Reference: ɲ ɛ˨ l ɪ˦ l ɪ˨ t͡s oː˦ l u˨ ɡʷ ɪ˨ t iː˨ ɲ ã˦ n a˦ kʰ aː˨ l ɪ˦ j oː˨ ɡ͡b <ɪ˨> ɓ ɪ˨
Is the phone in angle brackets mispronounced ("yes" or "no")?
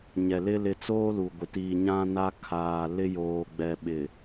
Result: yes